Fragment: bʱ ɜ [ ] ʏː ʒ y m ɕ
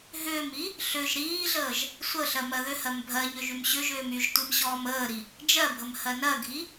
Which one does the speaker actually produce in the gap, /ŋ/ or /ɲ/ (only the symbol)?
ɲ